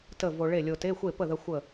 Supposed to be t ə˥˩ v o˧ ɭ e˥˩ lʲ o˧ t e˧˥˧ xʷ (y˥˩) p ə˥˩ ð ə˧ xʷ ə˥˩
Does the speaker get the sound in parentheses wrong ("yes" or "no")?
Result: yes